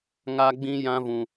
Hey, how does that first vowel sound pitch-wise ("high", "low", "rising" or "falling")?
high